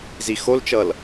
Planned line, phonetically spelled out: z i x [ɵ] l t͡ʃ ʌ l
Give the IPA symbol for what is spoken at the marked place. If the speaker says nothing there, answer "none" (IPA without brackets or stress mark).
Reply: o